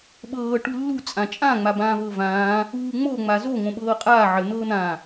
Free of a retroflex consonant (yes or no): no